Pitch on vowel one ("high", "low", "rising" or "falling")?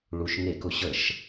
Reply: low